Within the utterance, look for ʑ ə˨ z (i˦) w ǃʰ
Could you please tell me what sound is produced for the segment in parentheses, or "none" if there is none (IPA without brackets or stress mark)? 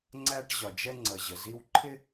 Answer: i˦